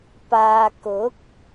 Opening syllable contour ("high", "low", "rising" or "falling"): low